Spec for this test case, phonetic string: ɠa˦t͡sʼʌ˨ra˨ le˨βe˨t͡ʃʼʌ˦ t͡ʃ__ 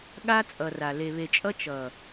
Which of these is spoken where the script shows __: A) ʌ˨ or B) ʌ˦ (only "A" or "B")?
A